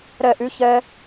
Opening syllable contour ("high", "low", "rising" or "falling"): falling